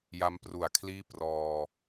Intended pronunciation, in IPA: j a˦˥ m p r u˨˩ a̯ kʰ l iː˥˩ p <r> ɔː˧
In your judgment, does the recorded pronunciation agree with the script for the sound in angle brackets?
yes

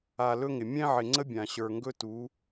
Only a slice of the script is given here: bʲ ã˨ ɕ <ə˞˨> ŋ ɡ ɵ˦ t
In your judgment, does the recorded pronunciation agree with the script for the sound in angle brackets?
yes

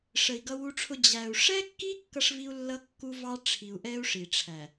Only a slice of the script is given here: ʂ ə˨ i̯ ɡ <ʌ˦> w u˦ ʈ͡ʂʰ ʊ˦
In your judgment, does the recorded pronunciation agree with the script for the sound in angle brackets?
yes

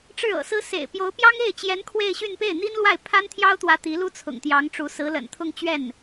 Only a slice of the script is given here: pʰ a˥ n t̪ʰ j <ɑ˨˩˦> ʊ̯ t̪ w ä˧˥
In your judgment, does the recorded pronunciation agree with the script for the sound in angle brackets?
no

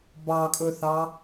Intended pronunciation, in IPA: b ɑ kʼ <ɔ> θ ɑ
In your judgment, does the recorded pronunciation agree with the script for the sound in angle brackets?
no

